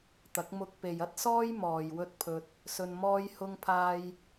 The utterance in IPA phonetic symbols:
t̪ɐ˨˥k̚mʊ˧k̚pe˨j ɐ˥t̚ sɔː˥j mɔː˨jwɵ˥t̚pʰɵ˧t̚ | sɵ˧nmɔː˥jhʊ˥ŋpʰaː˥j

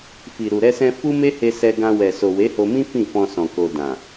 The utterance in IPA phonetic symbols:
fi˨ ɾu˨ɾɛ˧sɛ̃˧ fu˦me˦he˧ sɛ˧ɡã˧ wɛ˨so˨ we˨˦ho˧mĩ˦ fĩ˦˨fɔ̃˧ sɔ̃˨ko˨ dã˨

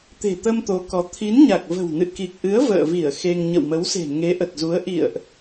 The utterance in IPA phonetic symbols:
t̪e̤˨˩t̪ə˧m t̪o˨˦kɔ˨˦ t̪ʰi˨˦nɲa˨˩k̚və̤˨˩w nɨ̰˧˨ki˨˩k̚ʔɨ˨˦ə̯ və̰ː˧˨vi˧˩ə̯ xe˧ŋ ɲə̰˧˨wmə˨˦wse̤˨˩ ŋe˨˦ʔə˨˩t̚zu˨˦ə̯ ʔḭ˧˨ə̯ʔ

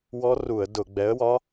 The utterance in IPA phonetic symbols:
wɔ˦˥ru˧˩˧ə̯ dʊ˧˩˧ ɡ͡bɛ˨˥ə̯wɒ˦˥

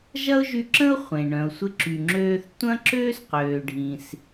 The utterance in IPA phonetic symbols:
ʒɐ˥ʊ̯ʒy˧ǁə̃˥ʊ̯ χʷẽ˩ ɳœ̃˩ʊ̯sʷɪ˧ǁy˩ ŋ͡ǁøː˧θ tʷɐ̃˥ ǁøː˥sqøː˩ɖʱĩ˩s

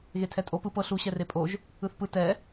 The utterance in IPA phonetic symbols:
ɣetʰɛtʼo pɯ pɤ ɬu ɕɛrepʼoʒ | ɯθpɯ tɛ

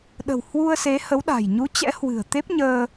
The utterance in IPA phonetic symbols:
ɗə̤˨˩w hwu˧ə̯se˨˦hə˨˦wɗa̤˨˩j ɲu˨˦t͡ɕɛ̰˧˥ hwɨ̤˨˩ə̯t̪e˦˥p̚ɲəː˧

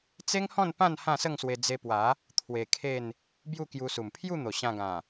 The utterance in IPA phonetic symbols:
t͡se˦ŋhɔ̃˥˧n pã˥˧n hã˥˧sə˥˧ŋswe˧ d͡ze˧pwa˨˦ | t̪ʰwe˧kʰe˥˧n | bju˥˧kju˧su˨˩m pʰju˥˧n̪o˨˩ɕã˧ɡã˨˩

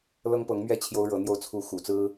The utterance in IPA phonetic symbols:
lɤ˥ŋpɤ˧˥ŋmɥɛ˥˩ t͡ɕʰjo˥ʊ̯ɻɤ˧˥n̪jo˥ʊ̯ t͡sʰu˧˥ xṵ˨˩t͡sɹ̩˥

